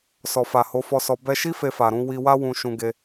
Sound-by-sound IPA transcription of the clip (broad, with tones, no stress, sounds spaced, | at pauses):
s ɔ˨ f a˨ h o˨˦ f ɔ˧ s ɔ˧ b ɛ˧ ʃ i˦ f e˧ f a˨ ɾ ũ˨˦ w i˧ w a˦ w ũ˧ ʃ ũ˧ ɡ e˧